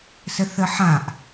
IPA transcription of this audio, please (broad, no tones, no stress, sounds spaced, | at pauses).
s ə θ ə ħ ã ʔ